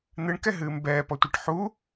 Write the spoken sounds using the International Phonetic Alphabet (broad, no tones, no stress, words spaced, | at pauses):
n̪ɨɳkɛɦɨːm bɛːpɔtʷiʈ ħu